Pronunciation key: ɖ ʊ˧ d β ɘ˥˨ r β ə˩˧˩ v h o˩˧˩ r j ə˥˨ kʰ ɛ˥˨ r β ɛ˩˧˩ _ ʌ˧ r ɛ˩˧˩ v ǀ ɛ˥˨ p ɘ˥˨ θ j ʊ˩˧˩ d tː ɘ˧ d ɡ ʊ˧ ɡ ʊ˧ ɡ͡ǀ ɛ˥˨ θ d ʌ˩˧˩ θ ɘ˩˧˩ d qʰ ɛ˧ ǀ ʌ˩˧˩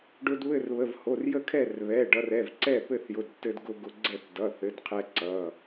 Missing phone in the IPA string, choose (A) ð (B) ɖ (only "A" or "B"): B